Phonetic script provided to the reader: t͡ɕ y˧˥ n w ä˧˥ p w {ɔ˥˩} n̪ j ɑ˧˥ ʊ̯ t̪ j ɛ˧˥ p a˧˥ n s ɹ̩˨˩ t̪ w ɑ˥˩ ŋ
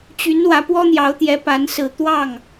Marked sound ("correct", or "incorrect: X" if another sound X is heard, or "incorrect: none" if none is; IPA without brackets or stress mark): incorrect: ɔ˥